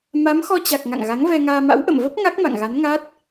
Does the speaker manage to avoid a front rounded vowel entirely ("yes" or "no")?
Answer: yes